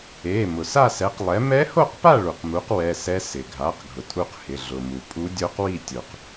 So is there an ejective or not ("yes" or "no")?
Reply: yes